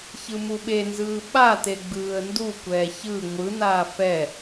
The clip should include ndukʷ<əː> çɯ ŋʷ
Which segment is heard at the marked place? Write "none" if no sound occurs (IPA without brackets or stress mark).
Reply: ɛː